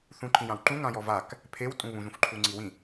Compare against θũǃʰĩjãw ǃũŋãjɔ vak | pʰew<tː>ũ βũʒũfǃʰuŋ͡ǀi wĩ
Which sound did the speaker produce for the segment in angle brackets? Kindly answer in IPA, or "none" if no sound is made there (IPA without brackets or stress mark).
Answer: tʼ